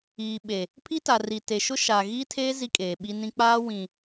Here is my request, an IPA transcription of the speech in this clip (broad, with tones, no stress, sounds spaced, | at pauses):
iː˨ ɓ e˨ | pʰ i˦ t a˨ r i˨ t e˨ ʃ ʊ˦ ʃ aː˨ ɣ iː˦ tʰ eː˦ z i˦ kʼ eː˨ ɓ i˦ n ĩ˦ k͡p aː˦ w ĩ˨